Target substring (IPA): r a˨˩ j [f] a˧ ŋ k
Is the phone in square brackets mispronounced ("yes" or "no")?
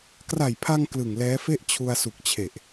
yes